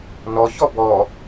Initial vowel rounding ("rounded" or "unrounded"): rounded